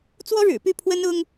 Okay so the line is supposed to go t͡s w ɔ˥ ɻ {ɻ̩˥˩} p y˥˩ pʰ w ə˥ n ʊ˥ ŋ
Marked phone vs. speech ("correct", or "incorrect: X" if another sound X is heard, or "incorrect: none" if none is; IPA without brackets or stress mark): incorrect: ɻ̩˨˩